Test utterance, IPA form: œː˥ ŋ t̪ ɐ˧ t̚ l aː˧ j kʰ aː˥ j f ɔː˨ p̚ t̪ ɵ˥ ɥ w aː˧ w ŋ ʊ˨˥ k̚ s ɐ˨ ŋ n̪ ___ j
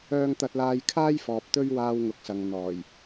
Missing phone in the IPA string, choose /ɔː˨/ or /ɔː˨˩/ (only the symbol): ɔː˨˩